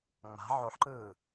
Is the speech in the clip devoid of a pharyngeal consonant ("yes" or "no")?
no